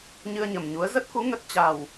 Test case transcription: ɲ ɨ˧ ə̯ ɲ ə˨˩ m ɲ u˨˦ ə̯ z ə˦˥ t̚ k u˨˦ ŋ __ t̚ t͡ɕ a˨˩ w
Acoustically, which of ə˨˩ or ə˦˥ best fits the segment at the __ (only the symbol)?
ə˦˥